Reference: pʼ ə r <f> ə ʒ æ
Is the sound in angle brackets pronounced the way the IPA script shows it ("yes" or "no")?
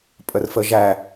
yes